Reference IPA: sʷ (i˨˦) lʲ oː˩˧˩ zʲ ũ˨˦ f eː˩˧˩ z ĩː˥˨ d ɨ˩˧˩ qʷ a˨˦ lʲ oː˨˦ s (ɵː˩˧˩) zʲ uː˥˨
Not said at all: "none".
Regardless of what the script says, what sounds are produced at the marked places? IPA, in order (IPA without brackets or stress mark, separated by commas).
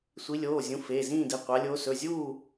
i˨˦, ɵ˩˧˩